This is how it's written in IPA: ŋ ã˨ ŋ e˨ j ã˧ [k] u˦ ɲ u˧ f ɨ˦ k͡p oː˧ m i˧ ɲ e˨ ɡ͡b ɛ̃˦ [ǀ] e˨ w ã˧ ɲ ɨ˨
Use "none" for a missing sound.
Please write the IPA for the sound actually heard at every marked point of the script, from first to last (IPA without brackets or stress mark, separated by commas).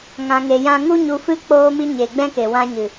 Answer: ŋ, k